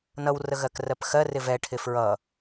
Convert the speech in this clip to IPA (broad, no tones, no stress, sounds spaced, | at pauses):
n ʌ w r ə ɣ ɜ k r ɜ p x ɜ r ɪ v ɛ ʈʰ ɪ f ɹ ʌ